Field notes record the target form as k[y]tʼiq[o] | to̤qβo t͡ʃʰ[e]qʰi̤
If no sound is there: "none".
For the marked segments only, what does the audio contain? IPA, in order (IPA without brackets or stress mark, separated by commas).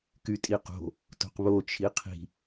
y, o̤, i